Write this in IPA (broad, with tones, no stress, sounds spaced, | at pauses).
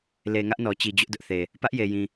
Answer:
l e˨ ŋ ä˦ ʔ n ɔ˨ t͡ɕ i˨ d͡ʑ ʊ˦ ʔ d ʊ˦ ʔ θ e˨ | p ä˦ ʔ j e˨ j ĩ˨